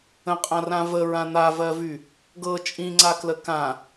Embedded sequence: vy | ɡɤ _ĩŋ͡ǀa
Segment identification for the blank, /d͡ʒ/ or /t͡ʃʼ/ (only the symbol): t͡ʃʼ